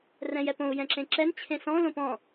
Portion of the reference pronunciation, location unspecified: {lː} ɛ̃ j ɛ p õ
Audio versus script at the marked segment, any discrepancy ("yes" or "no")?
yes